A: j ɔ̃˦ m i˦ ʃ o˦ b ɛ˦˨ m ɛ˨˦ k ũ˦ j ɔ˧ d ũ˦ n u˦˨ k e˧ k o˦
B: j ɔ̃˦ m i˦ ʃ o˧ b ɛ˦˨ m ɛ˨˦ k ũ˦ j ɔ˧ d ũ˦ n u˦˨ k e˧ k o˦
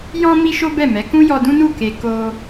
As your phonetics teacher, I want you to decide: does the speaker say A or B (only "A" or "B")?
A